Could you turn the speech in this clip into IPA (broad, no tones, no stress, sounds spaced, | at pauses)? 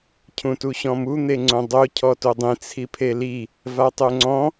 cʰ ũ t u ɕ ɔ̃ m u n̪ e ŋ͡ǀ õ dˤ o cʰ ɔ t o dˤ ĩ t͡sʰ i pʰ e l i | v a tˤ ø ŋ͡ǀ ɔ̃